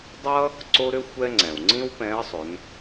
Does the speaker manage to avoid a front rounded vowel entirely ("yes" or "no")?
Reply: no